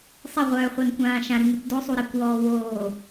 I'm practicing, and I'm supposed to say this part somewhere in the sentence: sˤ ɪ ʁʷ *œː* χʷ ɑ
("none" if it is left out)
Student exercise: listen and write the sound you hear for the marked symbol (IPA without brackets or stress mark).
œː